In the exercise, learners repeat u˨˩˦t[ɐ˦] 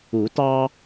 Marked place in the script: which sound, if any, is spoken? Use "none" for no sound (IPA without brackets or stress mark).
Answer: ɑ˦